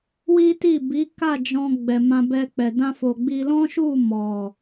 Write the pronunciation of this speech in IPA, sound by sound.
w i˦ t i˦˨ b i˨˦ k a˦˨ d͡ʒ ɔ̃˧ ɡ͡b ɛ˨ m ã˧ b ɛ˧ k͡p ɛ˨ d ã˧ f o˨ ɡ͡b i˧ l ɔ̃˦ ʃ u˦˨ m ɔ˨

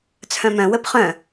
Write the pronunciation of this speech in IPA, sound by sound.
t͡sʰ œ̃ m œ̃ w ə p χ œ̃

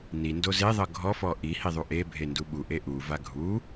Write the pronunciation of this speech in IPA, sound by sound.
n i n d o z e ðˤ ɤ ɡʱ ɔ f ɔ ʔ i h i ðˤ u ʔ e bʱ e n d u ɓ u ʔ e ʔ u v a ɡʱ u

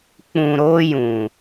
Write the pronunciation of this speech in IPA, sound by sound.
k͡p ũ˨ ɾ oː˧ j ũ˨

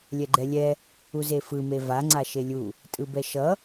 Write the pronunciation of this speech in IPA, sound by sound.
lʲ ɛ ɡ͡ǃ ɛ lʲ ɛ | u z e f ɯ m e v a ŋ͡ǀ a ʃ e lʲ u | tʼ ɯ b ɛ ʃ ʌ

